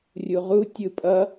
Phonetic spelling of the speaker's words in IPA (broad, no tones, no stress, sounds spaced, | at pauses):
rʲ u ʁ u tʲ ɯ pʼ ʌ